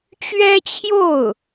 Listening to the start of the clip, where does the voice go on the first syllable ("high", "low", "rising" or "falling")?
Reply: high